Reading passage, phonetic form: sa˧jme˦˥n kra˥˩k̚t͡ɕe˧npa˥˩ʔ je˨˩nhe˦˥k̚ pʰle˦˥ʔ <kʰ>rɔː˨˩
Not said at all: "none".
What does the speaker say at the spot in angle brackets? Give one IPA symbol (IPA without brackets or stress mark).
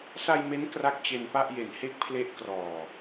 k